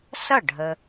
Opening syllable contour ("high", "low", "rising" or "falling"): falling